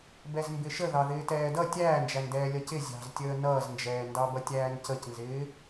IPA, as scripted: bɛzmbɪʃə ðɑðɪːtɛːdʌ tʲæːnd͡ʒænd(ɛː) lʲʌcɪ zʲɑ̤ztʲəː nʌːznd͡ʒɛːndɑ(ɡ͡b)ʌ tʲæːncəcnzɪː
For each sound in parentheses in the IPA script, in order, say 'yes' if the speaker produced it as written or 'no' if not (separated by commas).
yes, no